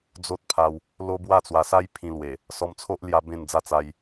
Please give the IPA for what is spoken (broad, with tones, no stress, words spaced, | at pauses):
d͡zo˦t̚pʰa˧w | lo˦bwa˥˧t͡swa˧sa˦j pʰĩ˧lwe˨˩ | sɔ˧mt͡sʰo˦ʔ lja˦bẽ˥˧nd͡za˦ t͡sa˧j